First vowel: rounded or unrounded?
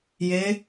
unrounded